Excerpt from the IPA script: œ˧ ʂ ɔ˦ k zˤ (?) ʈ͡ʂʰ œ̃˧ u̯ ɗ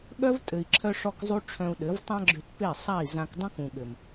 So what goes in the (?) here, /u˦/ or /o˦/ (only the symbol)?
u˦